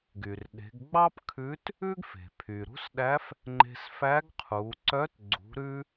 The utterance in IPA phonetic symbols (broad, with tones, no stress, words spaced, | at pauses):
ɡy˩rɗe̤˩˧ɡɡ͡bɑ˥pkʰʉ˧˥t | ʉ˥ɡ fe̤˩pʰy˩ ɾṳ˧˥sɗæ˧˥f | ŋ͡ǃe̤˧sfæ˧˥ɡ qʰu˩˧ǀœ˧˥t ɡ͡ǀṳ˩˧ɾʉ˧